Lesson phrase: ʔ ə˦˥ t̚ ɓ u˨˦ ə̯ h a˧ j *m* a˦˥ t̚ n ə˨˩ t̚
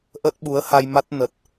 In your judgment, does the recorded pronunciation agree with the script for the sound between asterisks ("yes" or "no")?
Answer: yes